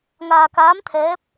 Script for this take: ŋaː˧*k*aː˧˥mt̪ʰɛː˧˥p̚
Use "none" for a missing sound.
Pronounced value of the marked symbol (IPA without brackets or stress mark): k